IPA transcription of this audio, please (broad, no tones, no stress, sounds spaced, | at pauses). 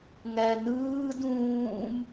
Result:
ŋ æ n ɯː d ũː m